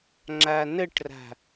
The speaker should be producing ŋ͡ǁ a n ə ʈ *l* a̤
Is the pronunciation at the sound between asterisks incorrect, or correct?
incorrect